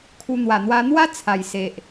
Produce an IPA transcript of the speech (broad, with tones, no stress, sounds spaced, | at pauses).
kʰ u˧ n̪ w a˨˩ n̪ w a˧ n̪ w a˦ t͡sʰ a˨˩ j s e˨ ʔ